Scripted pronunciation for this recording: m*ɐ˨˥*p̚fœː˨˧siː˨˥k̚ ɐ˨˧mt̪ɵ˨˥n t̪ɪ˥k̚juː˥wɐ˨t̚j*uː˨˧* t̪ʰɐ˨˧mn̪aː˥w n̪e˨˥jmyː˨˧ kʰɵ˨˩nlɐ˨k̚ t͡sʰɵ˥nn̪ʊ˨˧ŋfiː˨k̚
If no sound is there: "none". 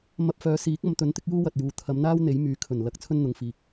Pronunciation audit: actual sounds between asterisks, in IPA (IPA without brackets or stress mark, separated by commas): ɐ˧, uː˨˧